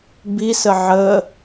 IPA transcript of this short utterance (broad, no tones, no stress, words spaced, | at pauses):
bisə ʕə